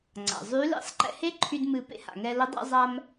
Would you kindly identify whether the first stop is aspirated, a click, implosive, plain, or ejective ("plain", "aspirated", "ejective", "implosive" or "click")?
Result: click